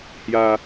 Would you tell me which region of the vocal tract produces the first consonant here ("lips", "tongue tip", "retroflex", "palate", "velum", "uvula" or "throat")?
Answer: throat